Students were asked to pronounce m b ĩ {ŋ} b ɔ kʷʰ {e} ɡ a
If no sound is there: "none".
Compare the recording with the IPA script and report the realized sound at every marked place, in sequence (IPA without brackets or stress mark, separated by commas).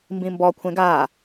m, ẽ